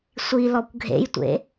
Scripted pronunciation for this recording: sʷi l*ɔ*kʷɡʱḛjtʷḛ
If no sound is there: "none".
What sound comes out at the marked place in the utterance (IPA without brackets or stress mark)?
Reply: ɔ